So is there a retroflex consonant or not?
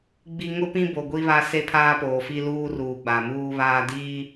no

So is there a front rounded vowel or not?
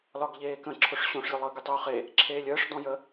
yes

